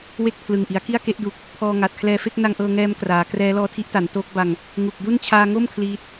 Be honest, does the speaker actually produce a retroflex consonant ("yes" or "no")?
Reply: no